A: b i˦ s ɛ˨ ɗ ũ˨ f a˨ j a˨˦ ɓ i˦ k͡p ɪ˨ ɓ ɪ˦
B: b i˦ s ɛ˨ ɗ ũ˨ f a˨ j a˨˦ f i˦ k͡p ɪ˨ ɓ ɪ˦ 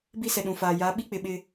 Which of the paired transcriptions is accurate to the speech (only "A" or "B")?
A